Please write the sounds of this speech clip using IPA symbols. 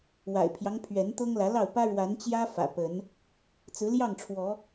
w a̰˨˩ ɪ̯ pʰ j ɑ˦ ŋ pʰ ɥ ɛ˨˦ n t̪ ɤ˦ ŋ l ä˨˦ l ɑ˥˨ ʊ̯ p ä˦ ɻ w a˨˦ n t͡ɕ j ä˦ f ä̰˨˩ p ə˨˦ n | t͡s ɹ̩˨˦ l j ɑ˥˨ ŋ ʈ͡ʂʰ w ɔ˨˦

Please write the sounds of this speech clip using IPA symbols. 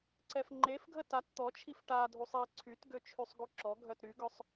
ǀ ɛ f ŋ͡ǃ e f ɡʱ ə t a t t̪ ɔ t͡ʃʰ i f ʈ a dʱ u sˤ i ǀʰ y t ɡ ø t͡ʃʰ y sˤ ɡ u ǁ ɔ ɡʱ œ t ɾ y ɡ œ sˤ

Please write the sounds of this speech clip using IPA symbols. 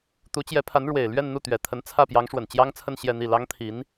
t̪ u˧˥ t͡ɕ j ɛ˧˥ pʰ a˧˥ n ɻ w e˨˩ ɪ̯ l ɥ ɛ˥˧ n n̪ u˥˩ t̪ ɥ ɛ˨˩ t̪ʰ ə˧˥ n t͡sʰ ä˥˩ p j ɑ˧˥ ŋ ʂ w ə˨˩ n t͡ɕ j ɑ˥ ŋ t͡sʰ ə˥˧ n ɕ j ɛ˥˧ n̪ i˥˩ l ɑ˥ ŋ t̪ʰ i˧˥ n

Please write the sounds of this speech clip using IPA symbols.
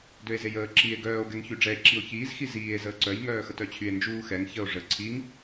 d ø e̯ z e j əː ǁ i e̯ ɡ œː o̯ ɡ ɛ ŋ ç y ɖ͡ʐ ɛ e̯ ǁ i o̯ ç iː z x i z iː e̯ z əː ǀ œ j ŋ œː x ə t œ t͡ɕʰ y e̯ n d͡ʒ uː x ɛ ŋ ç ə o̯ ʐ ə ǀʰ i ŋ

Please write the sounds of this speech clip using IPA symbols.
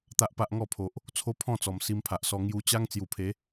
t̪ a˦ ʔ p a˦ ʔ ŋ ɔ˥˧ pʰ o˨ ʔ | t͡sʰ o˦ pʰ ɔ̃˥˧ t͡s ɔ˨˩ m s i˧ m pʰ a˨ ʔ s ɔ˧ ŋ j u˧ t͡ɕ a˦ ŋ t͡s j u˨˩ pʰ e˨˦

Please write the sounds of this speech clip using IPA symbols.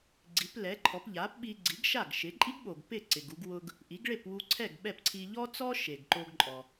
ɡ͡ǀ i˩˥ p l ɛ˩˥ ǃʰ ɔ˩˥ p ʎ a˩˥ p ɓ i˧ ɡ͡ǀ i˩˥ ɡ ʃ a˥˩ ɡ ʃ ɪ˩˥ ǃʼ i˥ ɡ ɓ o˩ ɡ p ɪ˥˩ ǀ ɪ˩ ɡ u˧ ɡ w ʊ˧ ɡ | ʔ i˩˥ ɡ ɭ e˥˩ p w u˧ ǀʰ ɛ˥˩ ɡ ɓ ɛ˥˩ p ǀʰ i˧ ʎ ɔ˥ t͡s ɔ˥ ʃ e˩ ɡ ǃ o˧ ɡ ǃʼ ɔ˩

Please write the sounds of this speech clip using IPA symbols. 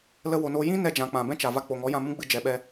l ə˧ w o˨ n oː˧ j ĩ˦ n ɛ˦ d͡ʒ ã˨ k͡p ã˨ b ɛ̃˦ t͡ʃ a˨ v a˧ k͡p o˨ ŋ ɔ˨˦ j ã˧ m ũ˦ ɡ͡b ɨ˧ d͡ʒ ɛ˨ ɓ ɛ˧

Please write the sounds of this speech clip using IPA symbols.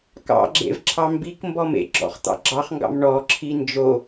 k ɑ̰ ɡ͡ǁ ḛ v ǁʰ ɑ m b i k m b ɔ m ḛ ɡ͡ǁ ɔ̰ χ t̪ ɑ̰ ɡ͡ǁ ɑ χ ŋ ɡ ɑ̰ m ɳ ɔ ǁʰ i n d͡ʒ o

